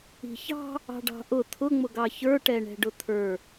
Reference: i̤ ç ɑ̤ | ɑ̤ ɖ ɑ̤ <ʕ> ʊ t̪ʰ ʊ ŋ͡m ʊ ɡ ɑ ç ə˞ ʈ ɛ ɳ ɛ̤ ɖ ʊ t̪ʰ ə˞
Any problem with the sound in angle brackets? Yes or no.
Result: yes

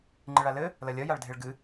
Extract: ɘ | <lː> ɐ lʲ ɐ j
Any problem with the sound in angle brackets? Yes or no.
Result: yes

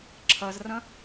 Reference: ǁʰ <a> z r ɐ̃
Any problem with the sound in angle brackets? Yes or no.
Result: yes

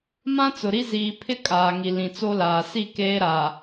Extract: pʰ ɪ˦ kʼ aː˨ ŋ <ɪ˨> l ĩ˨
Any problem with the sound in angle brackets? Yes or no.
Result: yes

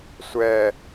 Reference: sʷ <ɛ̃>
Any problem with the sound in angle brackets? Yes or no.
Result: yes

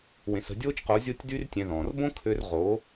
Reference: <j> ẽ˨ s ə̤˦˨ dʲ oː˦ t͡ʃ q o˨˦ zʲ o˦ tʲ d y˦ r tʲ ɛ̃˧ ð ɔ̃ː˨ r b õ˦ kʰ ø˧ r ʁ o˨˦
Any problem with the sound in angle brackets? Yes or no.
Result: yes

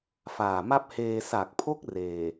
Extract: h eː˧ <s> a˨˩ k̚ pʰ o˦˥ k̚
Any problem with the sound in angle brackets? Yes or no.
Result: no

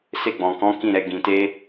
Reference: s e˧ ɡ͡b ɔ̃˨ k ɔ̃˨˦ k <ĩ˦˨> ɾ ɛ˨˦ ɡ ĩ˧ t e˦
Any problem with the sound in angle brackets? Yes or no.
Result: no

